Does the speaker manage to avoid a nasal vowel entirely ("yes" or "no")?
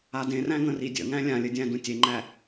no